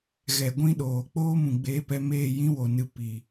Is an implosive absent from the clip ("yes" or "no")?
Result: no